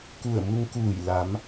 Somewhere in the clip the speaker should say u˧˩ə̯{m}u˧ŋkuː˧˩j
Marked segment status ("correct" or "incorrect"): correct